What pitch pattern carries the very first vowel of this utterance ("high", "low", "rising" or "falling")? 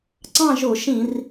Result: falling